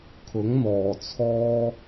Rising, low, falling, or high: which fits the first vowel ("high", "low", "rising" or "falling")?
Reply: rising